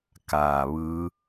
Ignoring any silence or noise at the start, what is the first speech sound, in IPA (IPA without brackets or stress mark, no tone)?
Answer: k